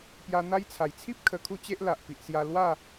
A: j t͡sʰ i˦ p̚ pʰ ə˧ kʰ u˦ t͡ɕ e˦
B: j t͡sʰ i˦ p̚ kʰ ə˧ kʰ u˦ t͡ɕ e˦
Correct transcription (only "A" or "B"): B